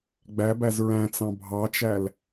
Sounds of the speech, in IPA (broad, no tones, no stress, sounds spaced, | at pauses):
ɡ͡b æ b æ z ɹ æ̃ t͡s ɑ̃ bʱ ɑ t͡ʃ æ l